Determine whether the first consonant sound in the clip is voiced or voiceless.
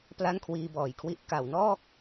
voiceless